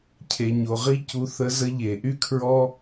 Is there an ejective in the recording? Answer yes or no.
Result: no